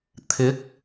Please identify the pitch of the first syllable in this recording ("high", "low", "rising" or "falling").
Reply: rising